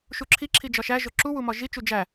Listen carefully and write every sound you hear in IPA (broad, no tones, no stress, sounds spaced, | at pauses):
ʃ u ǁʰ i ǁʰ i d͡ʒ ɒ ʃ æ ʒ o ǁ u w u m ɒ ʒ i t͡ʃ u d͡ʒ æ